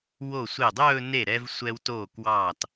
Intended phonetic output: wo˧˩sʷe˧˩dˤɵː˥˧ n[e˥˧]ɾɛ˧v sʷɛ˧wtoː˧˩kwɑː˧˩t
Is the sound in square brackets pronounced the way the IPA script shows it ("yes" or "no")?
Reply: no